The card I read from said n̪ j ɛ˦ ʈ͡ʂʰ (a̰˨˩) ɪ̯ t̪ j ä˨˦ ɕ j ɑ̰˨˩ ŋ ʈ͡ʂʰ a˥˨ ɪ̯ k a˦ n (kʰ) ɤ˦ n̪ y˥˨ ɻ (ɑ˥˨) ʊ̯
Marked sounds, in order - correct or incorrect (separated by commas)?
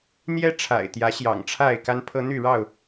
correct, incorrect, correct